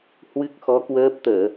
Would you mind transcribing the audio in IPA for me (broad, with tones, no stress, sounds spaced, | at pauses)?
h w ɨ˦˥ k̚ x ɔ˨˦ k w əː˦˥ p̚ t̪ əː˧˩˨